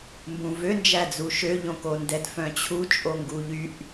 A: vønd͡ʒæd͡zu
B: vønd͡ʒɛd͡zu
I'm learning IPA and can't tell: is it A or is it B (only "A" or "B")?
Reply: A